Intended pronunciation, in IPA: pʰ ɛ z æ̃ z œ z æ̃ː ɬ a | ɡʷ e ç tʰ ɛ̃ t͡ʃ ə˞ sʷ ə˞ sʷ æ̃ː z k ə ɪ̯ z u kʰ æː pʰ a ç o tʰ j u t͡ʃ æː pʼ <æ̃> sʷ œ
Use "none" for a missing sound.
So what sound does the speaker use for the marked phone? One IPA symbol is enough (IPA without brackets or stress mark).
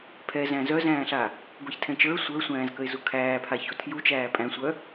æ̃